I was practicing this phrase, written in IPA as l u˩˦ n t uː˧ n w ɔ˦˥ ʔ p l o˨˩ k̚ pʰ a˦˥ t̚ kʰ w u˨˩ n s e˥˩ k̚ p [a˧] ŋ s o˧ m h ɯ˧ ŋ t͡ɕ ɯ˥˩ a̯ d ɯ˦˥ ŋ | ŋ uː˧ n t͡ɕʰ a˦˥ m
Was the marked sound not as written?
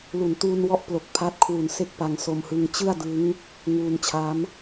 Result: no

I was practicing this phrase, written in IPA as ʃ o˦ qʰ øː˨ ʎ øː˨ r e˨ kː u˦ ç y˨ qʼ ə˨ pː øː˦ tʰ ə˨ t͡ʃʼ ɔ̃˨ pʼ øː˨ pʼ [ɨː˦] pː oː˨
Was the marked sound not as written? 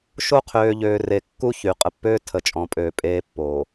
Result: yes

